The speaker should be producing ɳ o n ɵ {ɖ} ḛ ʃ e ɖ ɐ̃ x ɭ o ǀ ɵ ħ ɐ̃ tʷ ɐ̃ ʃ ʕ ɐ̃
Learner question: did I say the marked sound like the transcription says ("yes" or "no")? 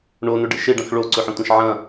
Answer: yes